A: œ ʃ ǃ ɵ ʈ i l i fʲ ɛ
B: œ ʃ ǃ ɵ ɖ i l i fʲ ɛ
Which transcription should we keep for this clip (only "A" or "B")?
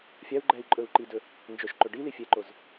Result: B